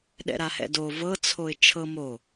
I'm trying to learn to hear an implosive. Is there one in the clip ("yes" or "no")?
yes